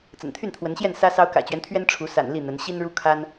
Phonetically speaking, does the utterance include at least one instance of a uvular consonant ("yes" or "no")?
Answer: no